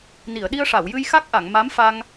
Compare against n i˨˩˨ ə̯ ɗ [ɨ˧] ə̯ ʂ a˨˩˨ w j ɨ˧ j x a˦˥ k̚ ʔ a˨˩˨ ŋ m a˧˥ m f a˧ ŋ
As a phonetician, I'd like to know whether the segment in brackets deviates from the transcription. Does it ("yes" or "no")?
yes